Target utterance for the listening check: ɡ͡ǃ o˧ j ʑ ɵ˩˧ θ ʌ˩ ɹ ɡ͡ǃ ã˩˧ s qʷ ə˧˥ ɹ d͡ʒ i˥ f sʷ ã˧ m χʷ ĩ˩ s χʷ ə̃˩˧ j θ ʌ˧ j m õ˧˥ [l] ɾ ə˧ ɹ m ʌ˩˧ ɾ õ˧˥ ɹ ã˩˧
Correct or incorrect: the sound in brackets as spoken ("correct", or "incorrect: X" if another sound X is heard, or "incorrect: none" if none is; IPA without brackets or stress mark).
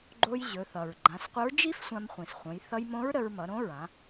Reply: incorrect: ɹ